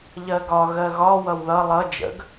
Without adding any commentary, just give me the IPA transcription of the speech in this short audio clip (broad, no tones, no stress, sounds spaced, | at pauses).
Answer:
ʎ ɜ ɡ ɒ ɣ ɜ ɣ ɒ w ʌ w ð ʌ lˠ ʌ d͡ʒ ə̰ ɡ